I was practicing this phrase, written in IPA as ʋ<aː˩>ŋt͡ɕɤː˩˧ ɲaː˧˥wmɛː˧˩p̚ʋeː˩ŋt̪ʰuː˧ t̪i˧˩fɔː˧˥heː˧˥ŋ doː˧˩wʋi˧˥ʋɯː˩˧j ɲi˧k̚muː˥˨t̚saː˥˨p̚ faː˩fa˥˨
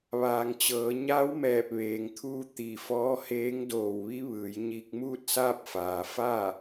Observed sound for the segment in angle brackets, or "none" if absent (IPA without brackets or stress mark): aː˩